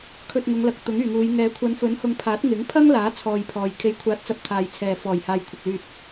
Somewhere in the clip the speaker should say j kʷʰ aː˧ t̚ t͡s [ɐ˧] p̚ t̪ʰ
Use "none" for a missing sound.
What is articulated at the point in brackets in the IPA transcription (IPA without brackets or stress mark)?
ɐ˧